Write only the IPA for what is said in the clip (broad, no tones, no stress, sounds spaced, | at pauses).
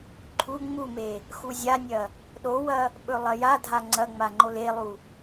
ǃʰ u ŋ͡m u m e | x u zʲ a nʲ ɐ | ɗ o w ɐ | ɓ ɵ lˠ ɐ j a dʱ a ŋ͡ǀ ɐ ŋ͡m a ŋ͡ǃ o l e lˠ u